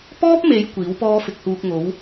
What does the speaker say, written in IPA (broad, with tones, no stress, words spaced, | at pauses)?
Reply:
pɔː˥p̚me˨˧j kʷiː˨˥wpɔː˥ fɪ˨k̚huː˧k̚ŋo˨˥w